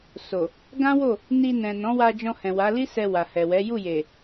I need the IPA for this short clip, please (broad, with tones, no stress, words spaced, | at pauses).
so˨ | ɡã˦wo˦˨ | ni˧ nɛ̃˨nɔ̃˨˦wa˧d͡ʒɔ̃˧ hɛ̃˨wa˨˦ li˦sɛ˧ wa˨ hɛ˨wɛ˨˦ ju˦˨je˨